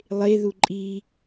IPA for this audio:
lˠ e ð u ǃʼ i

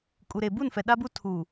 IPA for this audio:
kʼ u˨ ɾ e˨ b u˦˨ n f ɛ˨ ɗ a˦ b u˦ tʰ u˨

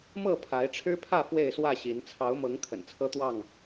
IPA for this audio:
m ɤ˥˨ pʰ a˨˦ ɪ̯ ʈ͡ʂʰ ɻ̩˦ pʰ ä˥˨ f w e˥˨ ɪ̯ s w ä˥˨ ɕ i˨˦ n t͡sʰ ɑ˨˦ ʊ̯ m ɤ˨˦ ŋ kʰ ə̰˨˩ n t͡sʰ ɤ˦ t̪ w ɑ˥˨ ŋ

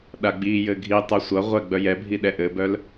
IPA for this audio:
ɗ a ɡ͡b i j ɘ ɡʱ i tˤ o sʷ ʌ ʁʷ ɛ ɡ͡b œ j ɛ bʱ i ɗ ɛ ʔ ɘ b œ l

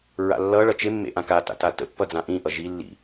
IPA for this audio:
ɹ a̰ lː ʌ ɭ ʌ t͡ʃ e mː ḛ ʔ ã k a t a̰ t a t ə̰ pː ʌ d͡z ã ʔ ĩ ʔ ʌ ʒ i lː ḭ

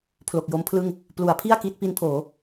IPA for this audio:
pʰ l o˨˩ k̚ j o˦˥ m pʰ l ɯ˥˩ ŋ | p l u˩˦ a̯ pʰ i˥˩ a̯ k i˦˥ t̚ p i˦˥ n pʰ oː˩˦

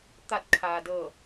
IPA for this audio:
t̪ a˧˩ t̚ kʰ aː˩ d ɤː˧˩

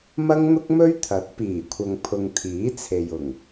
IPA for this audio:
m ɐ˥ ŋ n̪ ʊ˥ k̚ m ɵ˥ ɥ t̪ʰ ɐ˨˥ t̚ p iː˨˩ kʷʰ ɐ˨ ŋ pʰ ʊ˨ ŋ t̪ʰ iː˨˥ t͡sʰ e˨ j ʊ˨˩ ŋ

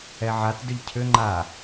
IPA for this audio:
ɛ ʕ a t d ʏ ʎ cʰ ʏ ŋ͡ǃ a

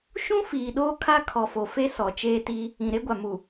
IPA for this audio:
ʃ ũ˦ f iː˨ ɗ oː˦ kʰ a˦ kʰ ɔ˨ f o˨ f e˦ s ɔ˨ t͡ʃ eː˦ t iː˦ | ĩ˨ ɾ e˦ ɡʷ a˨ m u˨

